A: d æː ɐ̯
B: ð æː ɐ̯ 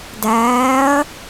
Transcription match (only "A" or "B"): A